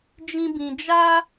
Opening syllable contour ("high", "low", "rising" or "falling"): high